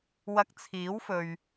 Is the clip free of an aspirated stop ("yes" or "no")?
no